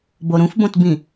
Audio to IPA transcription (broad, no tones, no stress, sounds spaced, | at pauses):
b o ɾ ũ f b õ t b ĩ